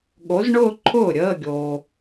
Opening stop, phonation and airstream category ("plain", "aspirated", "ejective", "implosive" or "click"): implosive